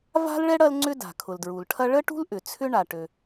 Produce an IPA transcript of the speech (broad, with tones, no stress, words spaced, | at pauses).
va̤˥lɭɛ˥ ɽɐ˥lŋ͡ǀʏ˥da̤˩ kʰʊ˩ldɹu˩lʈʰɐ˥ ɭə˥ʈṳ˥lʔʏ˩ t͡sʰʏ˥ɳa˩ʈø˩